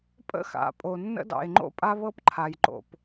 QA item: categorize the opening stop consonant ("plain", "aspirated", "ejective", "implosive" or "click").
ejective